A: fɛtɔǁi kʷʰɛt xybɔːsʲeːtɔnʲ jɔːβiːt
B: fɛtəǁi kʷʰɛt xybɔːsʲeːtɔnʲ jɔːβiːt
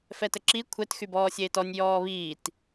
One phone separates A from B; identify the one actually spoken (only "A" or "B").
B